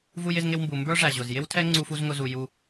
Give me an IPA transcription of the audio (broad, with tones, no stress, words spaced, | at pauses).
vu˧jɪ˧zŋɪ˧wmbu˨ mbə˞˦ʐæ˨ ʑʊ˨z jɪ˦wtʰɛ˦ ŋ͡ǀu˦fu˦zŋʊ˦zu˧ ju˧